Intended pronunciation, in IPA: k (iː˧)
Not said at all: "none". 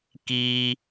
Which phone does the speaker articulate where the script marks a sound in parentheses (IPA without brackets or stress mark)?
iː˧